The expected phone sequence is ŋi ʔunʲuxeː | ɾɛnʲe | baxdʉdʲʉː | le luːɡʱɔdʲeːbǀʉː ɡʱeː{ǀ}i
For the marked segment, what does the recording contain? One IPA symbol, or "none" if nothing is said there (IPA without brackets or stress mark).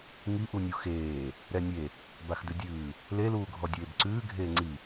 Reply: ŋ͡ǀ